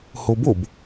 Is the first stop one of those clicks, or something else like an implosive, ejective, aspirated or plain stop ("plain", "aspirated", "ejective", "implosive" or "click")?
plain